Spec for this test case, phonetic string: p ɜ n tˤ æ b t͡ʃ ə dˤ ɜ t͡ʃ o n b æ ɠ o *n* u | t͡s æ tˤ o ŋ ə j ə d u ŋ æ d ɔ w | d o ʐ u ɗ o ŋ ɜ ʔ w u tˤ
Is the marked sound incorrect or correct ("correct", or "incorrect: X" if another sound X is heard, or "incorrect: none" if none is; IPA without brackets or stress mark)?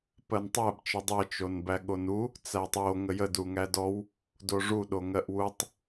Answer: correct